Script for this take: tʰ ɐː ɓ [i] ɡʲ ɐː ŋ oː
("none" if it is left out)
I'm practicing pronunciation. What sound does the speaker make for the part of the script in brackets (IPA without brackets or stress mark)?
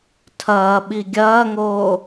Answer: i